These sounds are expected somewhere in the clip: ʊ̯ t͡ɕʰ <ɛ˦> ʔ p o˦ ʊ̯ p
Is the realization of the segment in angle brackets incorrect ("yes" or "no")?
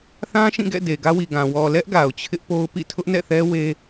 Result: yes